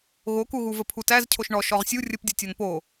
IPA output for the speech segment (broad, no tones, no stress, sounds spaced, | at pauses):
ɣ o k u ɣ u v ə pʰ u t æ z cʰ o ʃ ɳ ɔ ʃ ɔ ʁ sʲ u rʲ ə p dʲ ɔ tʲ ɔ n p o